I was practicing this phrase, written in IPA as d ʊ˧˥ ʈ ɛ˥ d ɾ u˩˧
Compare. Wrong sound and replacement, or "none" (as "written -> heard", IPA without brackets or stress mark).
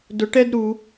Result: none